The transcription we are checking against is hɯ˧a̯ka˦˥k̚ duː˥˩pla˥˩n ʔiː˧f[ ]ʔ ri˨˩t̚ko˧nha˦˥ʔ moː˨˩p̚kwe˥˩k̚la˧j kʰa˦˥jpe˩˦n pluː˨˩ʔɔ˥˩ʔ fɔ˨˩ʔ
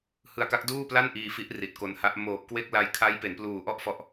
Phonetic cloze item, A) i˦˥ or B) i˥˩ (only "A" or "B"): A